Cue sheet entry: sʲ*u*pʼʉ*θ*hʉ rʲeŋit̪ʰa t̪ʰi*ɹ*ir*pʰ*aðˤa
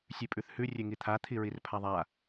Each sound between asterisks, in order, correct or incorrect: incorrect: ʉ, correct, correct, correct

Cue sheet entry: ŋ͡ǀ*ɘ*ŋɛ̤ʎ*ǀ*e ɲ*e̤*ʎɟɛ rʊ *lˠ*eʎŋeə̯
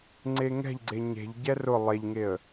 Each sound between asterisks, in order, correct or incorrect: incorrect: e, incorrect: ɡ͡ǀ, correct, correct

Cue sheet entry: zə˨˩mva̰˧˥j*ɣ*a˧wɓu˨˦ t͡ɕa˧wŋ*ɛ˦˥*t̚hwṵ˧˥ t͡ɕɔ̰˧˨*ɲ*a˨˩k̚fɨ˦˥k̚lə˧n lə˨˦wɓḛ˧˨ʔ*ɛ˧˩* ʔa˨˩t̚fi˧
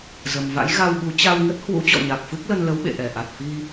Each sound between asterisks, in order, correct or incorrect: correct, incorrect: ə˦˥, correct, correct

